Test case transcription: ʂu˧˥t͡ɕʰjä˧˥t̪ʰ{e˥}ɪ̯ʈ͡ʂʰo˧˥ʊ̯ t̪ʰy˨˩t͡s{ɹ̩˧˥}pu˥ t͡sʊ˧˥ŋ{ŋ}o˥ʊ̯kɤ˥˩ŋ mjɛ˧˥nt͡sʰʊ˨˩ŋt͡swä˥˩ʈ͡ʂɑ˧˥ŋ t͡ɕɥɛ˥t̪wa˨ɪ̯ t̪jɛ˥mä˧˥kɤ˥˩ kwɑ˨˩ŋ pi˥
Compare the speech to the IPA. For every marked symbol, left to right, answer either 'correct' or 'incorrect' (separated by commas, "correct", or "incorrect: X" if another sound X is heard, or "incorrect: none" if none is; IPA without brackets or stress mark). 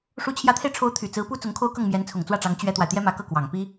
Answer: incorrect: e˧, correct, incorrect: kʰ